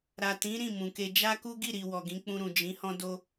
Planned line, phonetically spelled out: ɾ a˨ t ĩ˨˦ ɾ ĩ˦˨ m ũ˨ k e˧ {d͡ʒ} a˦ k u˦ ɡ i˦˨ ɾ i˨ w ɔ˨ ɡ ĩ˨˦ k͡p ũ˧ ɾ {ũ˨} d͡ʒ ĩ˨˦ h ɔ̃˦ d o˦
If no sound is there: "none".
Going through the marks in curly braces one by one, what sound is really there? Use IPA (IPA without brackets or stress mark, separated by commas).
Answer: d͡ʒ, ũ˨